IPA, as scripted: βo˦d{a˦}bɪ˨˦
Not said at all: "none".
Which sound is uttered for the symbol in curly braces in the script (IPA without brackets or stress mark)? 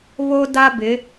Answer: a˦